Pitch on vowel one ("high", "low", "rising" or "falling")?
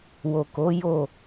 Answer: low